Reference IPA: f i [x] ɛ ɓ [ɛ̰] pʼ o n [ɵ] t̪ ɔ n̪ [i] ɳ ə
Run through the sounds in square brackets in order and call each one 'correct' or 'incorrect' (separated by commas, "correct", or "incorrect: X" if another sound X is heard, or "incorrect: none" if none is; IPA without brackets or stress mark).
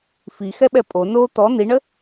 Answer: correct, incorrect: ɛ, incorrect: o, correct